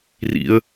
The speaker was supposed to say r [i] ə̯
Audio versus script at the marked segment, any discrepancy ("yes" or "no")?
yes